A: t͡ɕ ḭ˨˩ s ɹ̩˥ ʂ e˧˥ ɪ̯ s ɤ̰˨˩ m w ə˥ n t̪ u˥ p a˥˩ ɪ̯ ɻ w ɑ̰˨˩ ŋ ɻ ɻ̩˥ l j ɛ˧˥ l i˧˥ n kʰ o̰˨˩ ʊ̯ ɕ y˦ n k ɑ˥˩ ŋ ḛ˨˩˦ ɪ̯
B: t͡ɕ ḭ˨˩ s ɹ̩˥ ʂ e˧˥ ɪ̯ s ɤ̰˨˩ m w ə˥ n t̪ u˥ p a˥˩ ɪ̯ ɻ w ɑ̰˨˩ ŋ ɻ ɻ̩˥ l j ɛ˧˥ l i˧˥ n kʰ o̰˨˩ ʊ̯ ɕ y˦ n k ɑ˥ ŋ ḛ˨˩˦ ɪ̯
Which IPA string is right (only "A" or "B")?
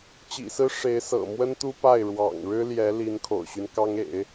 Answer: B